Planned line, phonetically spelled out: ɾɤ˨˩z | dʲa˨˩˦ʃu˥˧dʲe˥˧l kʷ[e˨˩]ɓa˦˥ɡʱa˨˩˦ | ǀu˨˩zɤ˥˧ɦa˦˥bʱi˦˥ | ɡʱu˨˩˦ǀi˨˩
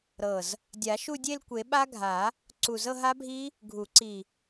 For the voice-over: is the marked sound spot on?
no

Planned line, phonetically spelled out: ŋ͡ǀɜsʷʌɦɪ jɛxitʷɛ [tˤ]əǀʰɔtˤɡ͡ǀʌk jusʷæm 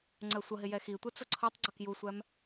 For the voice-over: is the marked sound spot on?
no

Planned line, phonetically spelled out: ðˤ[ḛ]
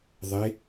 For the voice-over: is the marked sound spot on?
no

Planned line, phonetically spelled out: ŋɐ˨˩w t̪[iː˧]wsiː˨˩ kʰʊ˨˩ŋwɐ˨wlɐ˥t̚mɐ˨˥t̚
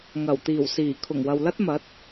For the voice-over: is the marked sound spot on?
no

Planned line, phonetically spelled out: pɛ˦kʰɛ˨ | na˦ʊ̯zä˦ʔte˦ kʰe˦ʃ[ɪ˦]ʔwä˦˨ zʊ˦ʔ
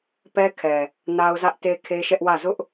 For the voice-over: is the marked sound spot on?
no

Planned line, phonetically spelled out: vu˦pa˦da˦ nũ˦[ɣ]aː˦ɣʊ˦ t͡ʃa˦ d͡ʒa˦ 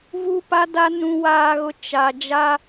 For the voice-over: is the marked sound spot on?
no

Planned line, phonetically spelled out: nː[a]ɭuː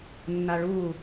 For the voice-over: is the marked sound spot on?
yes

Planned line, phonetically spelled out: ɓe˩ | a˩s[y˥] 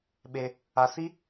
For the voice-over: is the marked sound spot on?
no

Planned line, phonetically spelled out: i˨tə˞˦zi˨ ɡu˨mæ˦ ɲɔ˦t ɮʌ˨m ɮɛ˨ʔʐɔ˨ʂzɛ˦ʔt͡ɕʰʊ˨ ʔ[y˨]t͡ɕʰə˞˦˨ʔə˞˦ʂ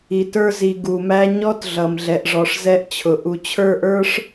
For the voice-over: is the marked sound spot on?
no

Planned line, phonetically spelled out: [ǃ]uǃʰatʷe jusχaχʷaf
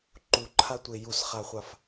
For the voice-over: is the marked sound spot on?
yes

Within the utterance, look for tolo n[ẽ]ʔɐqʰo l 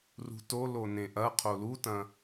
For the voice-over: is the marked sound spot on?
yes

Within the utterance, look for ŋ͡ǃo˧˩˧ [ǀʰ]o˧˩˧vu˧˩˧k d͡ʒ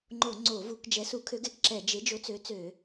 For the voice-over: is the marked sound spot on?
no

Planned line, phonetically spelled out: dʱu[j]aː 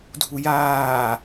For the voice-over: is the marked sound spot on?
yes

